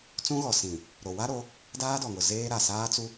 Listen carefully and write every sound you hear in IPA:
t͡s ũ˦ ɣ ɔ˨ s ĩ˨ | ɾ o˨ w a˦ ɾ o˨˦ | d aː˦ d ɔ˨ ŋ ʊ˨ z eː˦ ɾ a˨ s aː˦ t͡s u˦

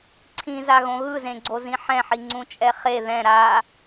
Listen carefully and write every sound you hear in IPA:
ǀʰ ĩ z a ɣ õ ɣ ɯ z ẽ ɡ͡ǀ o z ĩ ħ ɛ̃ ħ i ŋ͡ǀ ũ t͡ʃʼ ɛ χ e ð ɛ̃ ɾ a

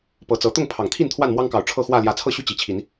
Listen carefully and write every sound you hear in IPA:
p ɤ˨˦ t͡s ɤ˨˦ t̪ ʊ˥˨ ŋ pʰ ɑ˨˩ ŋ t̪ʰ i˥˨ n t̪ʰ w a˥˨ n m w ɑ˦ ŋ k ɑ˨˩ ʊ̯ ʈ͡ʂʰ ɤ˥˨ x w ä˥˨ l j ä˨˦ t͡sʰ ɤ˥˨ ɕ y˦ t͡ɕ i˨˩ t͡ɕʰ i˨˦ n

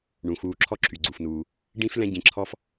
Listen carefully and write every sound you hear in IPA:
ɳ ũ˩ x uː˨ ǁʰ ɔ˥ ǁʰ y˩ ɡ͡ǀ u˩ f n uː˩ | ɖ ĩ˥ f l ɛ̃˦ ɟ ĩ˨ ǁʰ ɔ˦ f

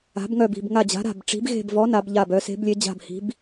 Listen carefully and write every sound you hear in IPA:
a̤˨˥ b ŋ œ˦˨ b i̤˦˨ b ŋ a˦˨ d͡ʑ a̤˨˥ ɾ a̤˦˨ b ʈ͡ʂ i̤˨˥ b ɣ e̤˦˨ b v ɔ˨˥ n a˨˥ b ʎ a˦˨ b œ˨˥ s e̤˨˥ b lʲ e˨˥ d͡ʑ a̤˦˨ b h i̤˨˥ b

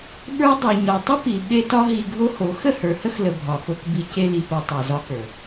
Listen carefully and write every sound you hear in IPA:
ɓ ə˞˦ dˤ e˨ ɲ ɒ˨ tˤ ə˦ p i˨ ɓ e˦ t ɒ˦ ɦ i˧ ɡʱ o˦ h o˨˦ x ə˦˨ h ə˞˨ h ə˦ x l ə˨ bʱ ɒ˨ x o˧ k b i˧ c e˧ l i˨ p o˨ tˤ e˨ z ɒ˧ k ə˞˨

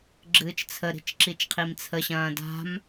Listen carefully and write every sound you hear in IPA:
ɡ͡ǁ ɨː t͡ʃ t͡sʰ ə ɾ i̤ t͡ʃ ǁ i t͡ʃ qʰ i m t͡sʰ ə ɕ ɐ̃ː d a̤ m

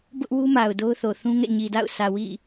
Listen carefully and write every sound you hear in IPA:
b ʊ˦ ʔ w u˦ m a˨ ʊ̯ d o˦ ʊ̯ θ o˨ θ ũ˦ ŋ ɛ̰˦˨ ɲ i˨ d a̰˦˨ ʊ̯ sʰ ä˨ w ḭ˦˨

